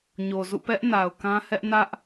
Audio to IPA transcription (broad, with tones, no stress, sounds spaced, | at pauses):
ɲ o˨ z ṵ˦˨ p ɛ˦ ʔ n a˨ ʊ̯ k ã˦ h ɛ˦ ʔ n ä˦ ʔ